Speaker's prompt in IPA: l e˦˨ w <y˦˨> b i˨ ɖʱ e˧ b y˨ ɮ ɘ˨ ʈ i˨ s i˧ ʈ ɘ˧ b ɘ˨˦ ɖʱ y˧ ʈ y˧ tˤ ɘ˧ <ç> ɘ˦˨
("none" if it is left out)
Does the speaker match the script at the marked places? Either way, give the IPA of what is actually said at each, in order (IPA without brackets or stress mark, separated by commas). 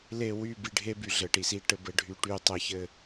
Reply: y˦˨, ç